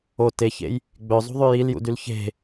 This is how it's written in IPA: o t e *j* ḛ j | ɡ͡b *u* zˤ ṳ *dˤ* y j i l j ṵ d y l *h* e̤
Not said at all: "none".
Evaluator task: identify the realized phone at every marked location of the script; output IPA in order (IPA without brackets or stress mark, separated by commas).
ç, ø, ðˤ, ç